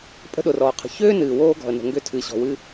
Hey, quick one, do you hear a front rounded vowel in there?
yes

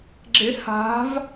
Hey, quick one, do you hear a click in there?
yes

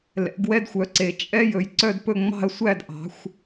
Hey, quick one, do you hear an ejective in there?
yes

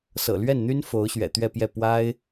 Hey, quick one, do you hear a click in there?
no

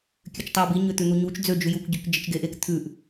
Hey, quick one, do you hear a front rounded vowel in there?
yes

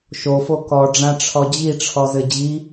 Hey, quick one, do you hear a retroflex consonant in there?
yes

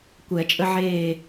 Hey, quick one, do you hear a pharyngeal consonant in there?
yes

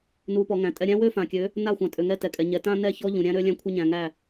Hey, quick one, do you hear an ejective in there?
yes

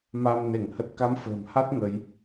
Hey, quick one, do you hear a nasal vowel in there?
no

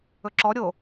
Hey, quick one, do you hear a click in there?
yes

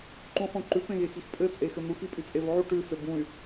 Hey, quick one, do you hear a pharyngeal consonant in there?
yes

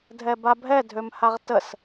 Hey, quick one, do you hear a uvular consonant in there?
yes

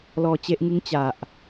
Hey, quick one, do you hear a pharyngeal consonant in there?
no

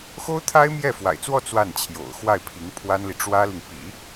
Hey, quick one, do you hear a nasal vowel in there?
no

